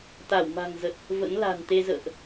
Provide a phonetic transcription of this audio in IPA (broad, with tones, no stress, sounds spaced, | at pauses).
t̪ a˧˩ w m a̤˨˩ ŋ z ə˨˩ t̚ | v ə̰˧˥ n l a̤˨˩ n t̪ e˧ z ə̰ː˧˨ ʔ